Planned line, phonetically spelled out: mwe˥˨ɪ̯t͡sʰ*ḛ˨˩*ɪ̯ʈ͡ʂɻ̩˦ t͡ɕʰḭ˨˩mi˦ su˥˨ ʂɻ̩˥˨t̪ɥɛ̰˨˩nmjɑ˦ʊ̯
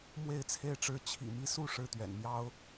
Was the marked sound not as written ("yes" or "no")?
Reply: yes